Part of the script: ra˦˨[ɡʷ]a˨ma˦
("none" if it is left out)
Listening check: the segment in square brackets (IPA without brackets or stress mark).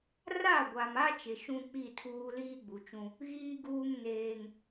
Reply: ɡʷ